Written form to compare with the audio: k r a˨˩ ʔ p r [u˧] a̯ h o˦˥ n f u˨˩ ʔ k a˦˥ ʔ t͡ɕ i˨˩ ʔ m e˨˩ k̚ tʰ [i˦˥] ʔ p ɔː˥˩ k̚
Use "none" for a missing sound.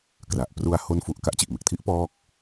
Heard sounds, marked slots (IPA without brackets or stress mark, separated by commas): u˧, i˦˥